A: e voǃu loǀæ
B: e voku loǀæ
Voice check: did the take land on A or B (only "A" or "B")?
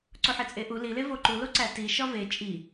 A